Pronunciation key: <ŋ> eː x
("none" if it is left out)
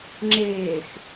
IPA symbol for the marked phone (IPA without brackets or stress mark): ŋ͡ǁ